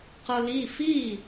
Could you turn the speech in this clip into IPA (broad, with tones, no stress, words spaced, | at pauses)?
qɤ˧li˥˨fi˥˨